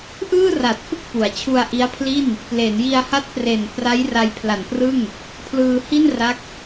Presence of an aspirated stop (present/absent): present